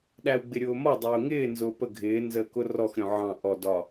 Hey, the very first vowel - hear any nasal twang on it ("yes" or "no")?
no